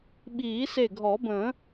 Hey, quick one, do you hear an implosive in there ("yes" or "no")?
yes